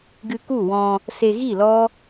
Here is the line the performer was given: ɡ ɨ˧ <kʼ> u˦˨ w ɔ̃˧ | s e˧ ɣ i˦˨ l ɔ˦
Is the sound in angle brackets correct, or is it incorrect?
incorrect